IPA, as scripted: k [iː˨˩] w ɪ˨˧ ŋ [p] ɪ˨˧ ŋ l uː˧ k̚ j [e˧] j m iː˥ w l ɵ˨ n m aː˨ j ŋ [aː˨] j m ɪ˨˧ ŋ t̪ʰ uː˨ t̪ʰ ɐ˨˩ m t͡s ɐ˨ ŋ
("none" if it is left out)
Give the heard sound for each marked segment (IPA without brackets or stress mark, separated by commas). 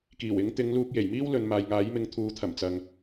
iː˨˩, t̪, e˨˩, aː˨˥